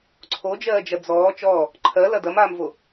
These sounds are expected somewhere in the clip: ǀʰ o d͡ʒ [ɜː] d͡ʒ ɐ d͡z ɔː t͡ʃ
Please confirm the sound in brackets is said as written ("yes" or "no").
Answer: yes